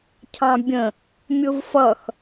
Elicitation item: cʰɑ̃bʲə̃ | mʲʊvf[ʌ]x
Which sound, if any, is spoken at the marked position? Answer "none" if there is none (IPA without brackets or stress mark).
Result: ʌ